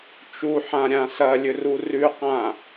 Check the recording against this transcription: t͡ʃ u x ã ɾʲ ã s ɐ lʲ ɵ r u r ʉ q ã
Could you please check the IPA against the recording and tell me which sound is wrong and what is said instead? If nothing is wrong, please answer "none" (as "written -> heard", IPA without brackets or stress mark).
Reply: x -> ħ